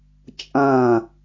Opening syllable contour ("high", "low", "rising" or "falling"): falling